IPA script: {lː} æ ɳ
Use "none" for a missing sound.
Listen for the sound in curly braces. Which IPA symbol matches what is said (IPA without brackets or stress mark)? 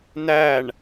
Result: n